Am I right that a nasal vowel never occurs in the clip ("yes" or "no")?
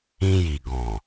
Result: no